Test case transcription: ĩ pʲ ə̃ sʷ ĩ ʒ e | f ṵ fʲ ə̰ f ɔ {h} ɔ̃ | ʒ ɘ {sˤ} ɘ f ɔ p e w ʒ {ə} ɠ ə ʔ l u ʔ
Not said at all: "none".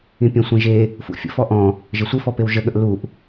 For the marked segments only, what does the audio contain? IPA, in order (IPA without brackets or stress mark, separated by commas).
ʔ, sʷ, ə